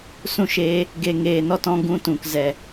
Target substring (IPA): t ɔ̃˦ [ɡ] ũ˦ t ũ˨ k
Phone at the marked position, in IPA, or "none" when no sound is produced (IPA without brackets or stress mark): ɡ